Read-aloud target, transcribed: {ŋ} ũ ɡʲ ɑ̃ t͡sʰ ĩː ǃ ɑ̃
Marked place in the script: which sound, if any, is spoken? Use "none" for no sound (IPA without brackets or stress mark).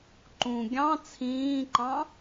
ǃ